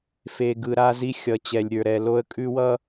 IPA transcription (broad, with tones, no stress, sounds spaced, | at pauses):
f e˨ ɡ ɯ˨ ɾ a˦ z i˦ xʲ ʌ˨ t͡ɕ ɛ˨ lʲ ɾʲ ə˞˨ ɾ ɛ˨ l o˦ ə̯ kʼ ʉ˦ w ʌ˦